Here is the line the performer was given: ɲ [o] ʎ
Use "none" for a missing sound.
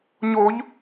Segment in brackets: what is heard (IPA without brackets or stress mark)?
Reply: o